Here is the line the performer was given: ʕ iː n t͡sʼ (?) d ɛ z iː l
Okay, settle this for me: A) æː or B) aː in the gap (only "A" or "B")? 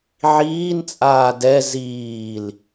B